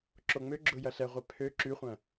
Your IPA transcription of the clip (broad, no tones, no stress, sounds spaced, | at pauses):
ǁ o ŋ͡m ø ɡ͡ǁ ʊ j ɐ ɬ ɛ ʁʷ ɛ pʰ ø ǁ y χʷ ɐ̃